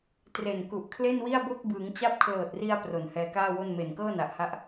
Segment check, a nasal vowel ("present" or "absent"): absent